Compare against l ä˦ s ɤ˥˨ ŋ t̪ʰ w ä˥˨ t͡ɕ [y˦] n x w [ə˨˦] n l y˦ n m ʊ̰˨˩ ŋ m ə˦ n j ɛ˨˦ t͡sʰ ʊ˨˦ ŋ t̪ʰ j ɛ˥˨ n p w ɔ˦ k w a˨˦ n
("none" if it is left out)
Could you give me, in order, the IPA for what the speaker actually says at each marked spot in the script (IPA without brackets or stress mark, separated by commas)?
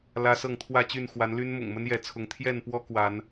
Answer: y˥˨, a˨˦